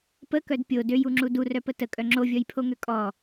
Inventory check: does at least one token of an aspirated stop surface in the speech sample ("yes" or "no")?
yes